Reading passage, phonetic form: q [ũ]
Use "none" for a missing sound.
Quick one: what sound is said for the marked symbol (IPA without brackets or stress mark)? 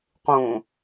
ũ